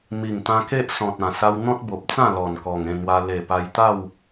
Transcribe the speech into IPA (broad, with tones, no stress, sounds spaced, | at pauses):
m i˨˩ ŋ t̪ ã˧ k e˦ ʔ s ɔ̃˨ t̚ ã˨˩ s a˧ w n̪ ɔ̃˦ t̚ b o˨ p̚ t͡s ã˥˧ l ɔ˨˩ n k ɔ˨˩ ŋ ẽ˥˧ n̪ w a˧ l e˨˩ p a˧ j t̪ a˥˧ w